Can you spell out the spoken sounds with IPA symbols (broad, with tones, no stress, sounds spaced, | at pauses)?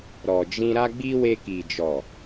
ɾ ɔ˨ d͡ʒ ĩ˧ ɾ a˧ ɡ͡b i˧ w e˧ k i˨ d͡ʒ ɔ˨